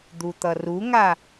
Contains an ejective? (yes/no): no